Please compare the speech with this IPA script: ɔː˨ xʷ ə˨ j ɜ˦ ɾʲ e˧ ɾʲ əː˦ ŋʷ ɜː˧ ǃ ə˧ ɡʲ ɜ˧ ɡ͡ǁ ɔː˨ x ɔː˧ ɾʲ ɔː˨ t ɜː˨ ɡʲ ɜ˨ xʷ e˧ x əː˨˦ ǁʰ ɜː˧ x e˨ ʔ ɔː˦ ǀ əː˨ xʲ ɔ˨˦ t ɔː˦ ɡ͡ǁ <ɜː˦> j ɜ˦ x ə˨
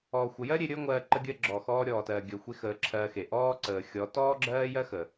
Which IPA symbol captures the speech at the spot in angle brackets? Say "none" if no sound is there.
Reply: ɜː˦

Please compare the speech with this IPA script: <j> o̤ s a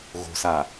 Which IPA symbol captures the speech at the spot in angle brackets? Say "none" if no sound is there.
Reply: ɣ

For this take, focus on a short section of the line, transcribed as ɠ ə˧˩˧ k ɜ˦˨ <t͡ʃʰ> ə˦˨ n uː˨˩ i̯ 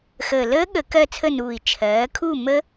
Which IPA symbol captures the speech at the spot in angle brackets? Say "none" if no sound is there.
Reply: t͡sʰ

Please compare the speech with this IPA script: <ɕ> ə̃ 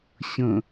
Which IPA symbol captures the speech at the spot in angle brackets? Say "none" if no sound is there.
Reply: ɕ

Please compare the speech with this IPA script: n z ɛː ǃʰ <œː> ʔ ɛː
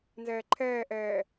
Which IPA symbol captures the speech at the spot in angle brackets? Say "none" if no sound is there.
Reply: ɛː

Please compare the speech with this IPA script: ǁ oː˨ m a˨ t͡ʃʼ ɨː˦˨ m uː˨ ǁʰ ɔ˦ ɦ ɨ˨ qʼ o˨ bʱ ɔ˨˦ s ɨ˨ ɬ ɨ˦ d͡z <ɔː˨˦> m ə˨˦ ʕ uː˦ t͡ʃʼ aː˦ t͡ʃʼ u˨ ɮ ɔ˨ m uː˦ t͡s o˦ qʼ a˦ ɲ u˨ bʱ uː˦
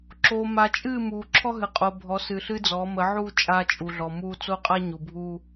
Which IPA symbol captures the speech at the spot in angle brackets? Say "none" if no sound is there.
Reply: ɔː˨˦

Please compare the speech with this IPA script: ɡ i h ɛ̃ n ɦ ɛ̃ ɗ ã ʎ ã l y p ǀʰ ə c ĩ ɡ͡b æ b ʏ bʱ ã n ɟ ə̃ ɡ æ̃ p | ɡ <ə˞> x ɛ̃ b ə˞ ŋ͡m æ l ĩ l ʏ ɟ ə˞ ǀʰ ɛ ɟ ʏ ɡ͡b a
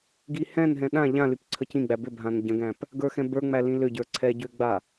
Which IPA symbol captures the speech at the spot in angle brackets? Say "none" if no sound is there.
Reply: ə˞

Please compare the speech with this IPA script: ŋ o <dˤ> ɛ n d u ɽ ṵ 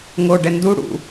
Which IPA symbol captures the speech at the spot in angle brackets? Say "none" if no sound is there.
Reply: ɖ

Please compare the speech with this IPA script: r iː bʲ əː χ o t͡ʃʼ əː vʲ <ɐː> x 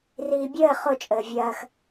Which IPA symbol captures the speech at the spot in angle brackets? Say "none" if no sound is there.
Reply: ɐː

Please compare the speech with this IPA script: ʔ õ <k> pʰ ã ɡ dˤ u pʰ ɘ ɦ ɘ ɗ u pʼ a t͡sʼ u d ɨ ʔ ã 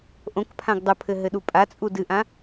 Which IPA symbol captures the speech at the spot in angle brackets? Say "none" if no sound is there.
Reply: k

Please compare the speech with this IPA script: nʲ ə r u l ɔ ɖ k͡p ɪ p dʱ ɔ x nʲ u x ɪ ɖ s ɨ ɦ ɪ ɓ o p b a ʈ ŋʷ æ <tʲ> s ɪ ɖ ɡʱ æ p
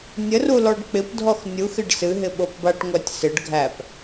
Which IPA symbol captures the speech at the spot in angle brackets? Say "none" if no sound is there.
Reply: tʲ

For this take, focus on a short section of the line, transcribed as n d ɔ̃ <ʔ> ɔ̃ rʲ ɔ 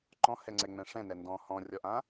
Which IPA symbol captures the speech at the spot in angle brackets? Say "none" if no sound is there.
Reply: h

